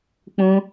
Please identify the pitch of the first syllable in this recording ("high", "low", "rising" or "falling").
high